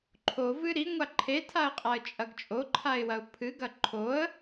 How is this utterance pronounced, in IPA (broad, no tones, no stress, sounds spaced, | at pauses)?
ǃʰ o v ɨ ɾ i ŋʷ a ǃʰ e tʰ a ə̯ qʼ a ə̯ t͡ʃʼ ɐ ɡ t͡ʃʼ o ǃʰ a ɪ̯ w ɐ ʊ̯ pʰ ɨ ɡ ɐ ǃʰ o ə̯